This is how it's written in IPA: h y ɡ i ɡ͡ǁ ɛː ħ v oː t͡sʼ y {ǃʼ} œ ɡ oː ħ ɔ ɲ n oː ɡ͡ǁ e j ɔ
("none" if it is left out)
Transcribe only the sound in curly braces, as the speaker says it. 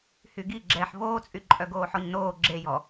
ǃʼ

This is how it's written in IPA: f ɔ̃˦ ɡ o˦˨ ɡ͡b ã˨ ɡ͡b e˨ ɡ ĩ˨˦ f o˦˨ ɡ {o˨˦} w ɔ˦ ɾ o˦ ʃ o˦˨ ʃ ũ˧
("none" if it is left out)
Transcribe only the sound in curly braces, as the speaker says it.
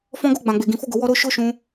o˨˦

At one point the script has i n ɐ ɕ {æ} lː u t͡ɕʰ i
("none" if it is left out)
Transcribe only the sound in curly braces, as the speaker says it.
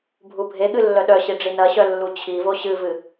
œ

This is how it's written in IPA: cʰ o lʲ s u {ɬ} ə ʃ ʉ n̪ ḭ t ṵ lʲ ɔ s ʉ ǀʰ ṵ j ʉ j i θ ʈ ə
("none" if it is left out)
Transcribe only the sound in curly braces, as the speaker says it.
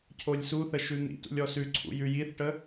θ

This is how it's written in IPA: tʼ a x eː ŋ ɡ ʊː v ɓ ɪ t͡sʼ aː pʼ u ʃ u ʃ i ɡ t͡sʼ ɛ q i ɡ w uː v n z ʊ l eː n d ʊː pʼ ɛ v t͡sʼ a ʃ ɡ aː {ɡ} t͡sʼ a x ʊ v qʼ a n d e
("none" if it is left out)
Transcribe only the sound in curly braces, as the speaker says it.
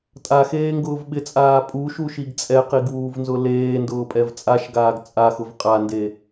ɡ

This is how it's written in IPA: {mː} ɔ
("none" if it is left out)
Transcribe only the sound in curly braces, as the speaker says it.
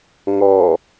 ŋ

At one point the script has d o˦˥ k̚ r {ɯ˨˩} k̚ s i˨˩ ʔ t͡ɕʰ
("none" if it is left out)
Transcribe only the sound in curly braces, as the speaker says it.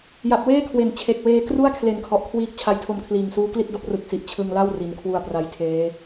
ɯ˨˩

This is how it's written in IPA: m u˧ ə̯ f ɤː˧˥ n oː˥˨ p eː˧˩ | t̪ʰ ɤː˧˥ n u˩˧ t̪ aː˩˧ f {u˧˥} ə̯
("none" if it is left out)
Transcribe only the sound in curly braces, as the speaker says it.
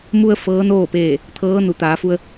u˧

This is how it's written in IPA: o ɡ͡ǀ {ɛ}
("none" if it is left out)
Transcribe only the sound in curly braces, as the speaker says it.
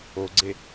e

